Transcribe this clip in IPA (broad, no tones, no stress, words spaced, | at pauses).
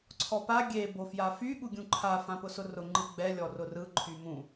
ǀʰɔpa ɡʲe bofjafy ɠuɡʲũǃʰa fãpʊsʊrʊ ŋ͡ǃɯɡ͡bɛ lʲɔrʊrɯ ǃʰymũ